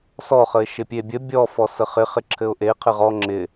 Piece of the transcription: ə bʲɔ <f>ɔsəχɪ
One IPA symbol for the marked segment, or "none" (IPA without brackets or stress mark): f